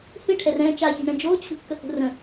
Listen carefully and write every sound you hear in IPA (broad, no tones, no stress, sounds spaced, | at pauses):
h ɨ ʈʰ ɛ r ɛ̃ː t͡ʃ a ç e̤ ɳ ɛ̃ d͡ʒ oː t͡ɕʰ ṳ kː ə h ṳ r ə̃